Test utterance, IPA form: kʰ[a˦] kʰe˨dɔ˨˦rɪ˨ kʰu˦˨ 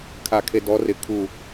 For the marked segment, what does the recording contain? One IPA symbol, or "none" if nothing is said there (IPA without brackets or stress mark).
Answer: a˨